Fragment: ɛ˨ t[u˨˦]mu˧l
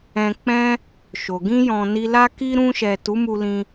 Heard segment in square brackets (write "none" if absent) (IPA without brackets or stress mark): u˨˦